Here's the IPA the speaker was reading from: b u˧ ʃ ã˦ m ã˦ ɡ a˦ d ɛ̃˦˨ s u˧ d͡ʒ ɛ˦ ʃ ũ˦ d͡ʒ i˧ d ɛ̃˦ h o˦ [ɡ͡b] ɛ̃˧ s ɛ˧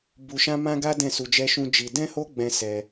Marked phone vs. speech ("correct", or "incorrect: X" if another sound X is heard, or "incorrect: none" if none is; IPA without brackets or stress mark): correct